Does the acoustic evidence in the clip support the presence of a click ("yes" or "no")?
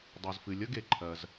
yes